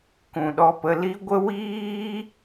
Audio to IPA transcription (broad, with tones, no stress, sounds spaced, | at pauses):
k ũ˨ ɗ ɔ˧ p ə˧ l i˦ ɡʷ ə˦ w iː˦